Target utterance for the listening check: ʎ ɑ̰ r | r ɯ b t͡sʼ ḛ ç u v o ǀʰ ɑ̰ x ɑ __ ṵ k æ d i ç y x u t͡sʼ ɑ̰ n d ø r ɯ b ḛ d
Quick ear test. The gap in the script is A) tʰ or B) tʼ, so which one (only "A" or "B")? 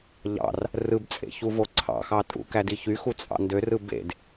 B